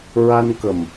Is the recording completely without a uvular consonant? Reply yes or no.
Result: yes